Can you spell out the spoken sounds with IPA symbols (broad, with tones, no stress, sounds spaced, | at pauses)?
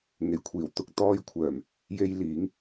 ŋ e˨˩ j kʷʰ iː˨˩ w t̪ ʊ˧ k̚ t̪ ɔː˧ j kʷʰ œː˨˩ m | j e˧ j l iː˨˥ ŋ